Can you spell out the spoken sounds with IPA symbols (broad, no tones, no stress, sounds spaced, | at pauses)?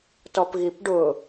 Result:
t ɔ p ɣ i p ɖ ʊ